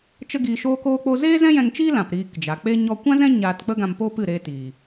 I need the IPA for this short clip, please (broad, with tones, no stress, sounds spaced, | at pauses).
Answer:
t͡ʃ ə˦ ɡ iː˧ ʃ oː˧ k oː˧ k͡p o˧ z eː˦ z ɛ̃˦ j ɛ̃˧ ŋ t͡ʃ iː˦ l ã˨ p ɾ iː˧ k d͡ʒ a˨ k͡p e˦ ɲ ɔ˧ kʷ ã˦ z ɛ̃˦ ɲ aː˧ t k͡p ə˦ ɡ ã˧ m p o˦ p ɨ˦˨ ɾ eː˧ t iː˨